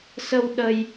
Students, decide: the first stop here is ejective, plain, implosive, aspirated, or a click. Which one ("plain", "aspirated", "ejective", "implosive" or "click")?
implosive